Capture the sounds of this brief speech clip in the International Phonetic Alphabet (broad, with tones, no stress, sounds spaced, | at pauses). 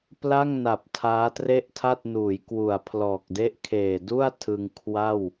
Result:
p l a˥˩ ŋ n a˨˩ p̚ tʰ aː˦˥ t r e˥˩ ʔ tʰ a˥˩ t̚ n uː˩˦ j k w u˨˩ a̯ pʰ l ɔː˨˩ k̚ d e˥˩ ʔ kʰ eː˨˩ d u˥˩ a̯ tʰ ɯ˧ ŋ kʰ w a˥˩ w